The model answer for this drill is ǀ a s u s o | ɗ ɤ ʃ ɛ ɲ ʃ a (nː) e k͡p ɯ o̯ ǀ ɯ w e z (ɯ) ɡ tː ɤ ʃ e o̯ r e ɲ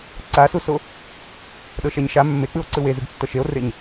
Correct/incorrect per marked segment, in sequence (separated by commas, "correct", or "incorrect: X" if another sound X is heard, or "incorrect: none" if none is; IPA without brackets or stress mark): incorrect: mː, correct